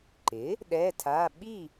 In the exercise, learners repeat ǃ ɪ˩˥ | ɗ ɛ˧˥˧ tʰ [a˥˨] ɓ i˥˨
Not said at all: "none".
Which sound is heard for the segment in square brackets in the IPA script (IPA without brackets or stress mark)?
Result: a˧˥˧